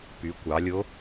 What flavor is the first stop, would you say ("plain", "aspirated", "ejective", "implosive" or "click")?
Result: plain